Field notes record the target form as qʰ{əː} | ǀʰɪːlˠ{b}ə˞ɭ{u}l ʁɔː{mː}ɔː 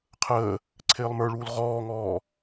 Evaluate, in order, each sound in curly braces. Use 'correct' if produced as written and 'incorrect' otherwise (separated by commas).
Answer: correct, incorrect, incorrect, incorrect